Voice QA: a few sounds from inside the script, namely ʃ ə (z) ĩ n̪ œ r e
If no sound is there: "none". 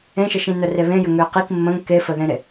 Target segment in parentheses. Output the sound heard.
ʃ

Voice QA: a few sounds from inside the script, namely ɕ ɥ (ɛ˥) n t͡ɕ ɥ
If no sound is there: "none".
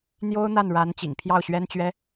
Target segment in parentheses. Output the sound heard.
ɛ˥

